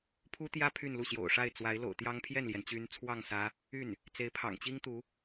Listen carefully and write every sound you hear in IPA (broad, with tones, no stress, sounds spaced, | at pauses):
pʰ u˥ t̪ j ä˥ pʰ y˥˧ n l u˥˩ ɕ j o̰˨˩ ʊ̯ ʂ a˥˩ ɪ̯ t͡s w a˧˥ ɪ̯ l o̰˨˩ ʊ̯ t̪ j ɑ˥ ŋ pʰ j ɛ˥˩ n l j ɛ˩ n t͡ɕ y˧˥ n t͡sʰ w ɑ˥˩ ŋ s ä˧˥ | y˥˩ n | t͡s e˧˥ ɪ̯ pʰ ɑ̰˨˩ ŋ t͡ɕ i˥ ŋ t̪ u˧˥